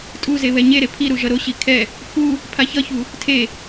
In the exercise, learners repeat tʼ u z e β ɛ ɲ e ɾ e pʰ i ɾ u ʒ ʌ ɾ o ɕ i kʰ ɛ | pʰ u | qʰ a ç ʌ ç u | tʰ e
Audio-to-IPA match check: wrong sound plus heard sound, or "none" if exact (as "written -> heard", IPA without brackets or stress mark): qʰ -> pʰ